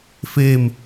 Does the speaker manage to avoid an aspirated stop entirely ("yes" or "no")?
yes